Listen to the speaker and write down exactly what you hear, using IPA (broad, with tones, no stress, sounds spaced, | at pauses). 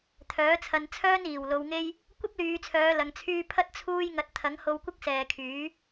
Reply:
t̪ʰ œː˨˥ t͡sʰ ɐ˧ n t͡sʰ œː˥ n iː˨˩ w l o˨˧ w ŋ e˥ j | kʷ ɐ˥ p̚ l yː˨˧ t͡sʰ œː˨˧ l ɐ˧ ŋ t͡sʰ yː˥ pʰ ɐ˥ t̚ t͡sʰ uː˥ j ŋ ɐ˧ t̚ t̪ʰ ɐ˨˥ ŋ h o˧ w kʷ ɪ˥ k̚ s ɛː˨ kʰ yː˨˥